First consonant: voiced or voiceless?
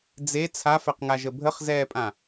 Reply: voiced